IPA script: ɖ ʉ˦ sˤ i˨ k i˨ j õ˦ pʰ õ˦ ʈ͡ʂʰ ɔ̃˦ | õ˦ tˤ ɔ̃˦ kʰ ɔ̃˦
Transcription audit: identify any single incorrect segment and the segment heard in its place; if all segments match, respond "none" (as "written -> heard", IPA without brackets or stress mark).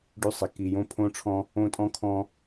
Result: tˤ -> tʼ